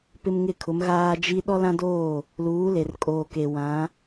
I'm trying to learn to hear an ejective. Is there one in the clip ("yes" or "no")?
yes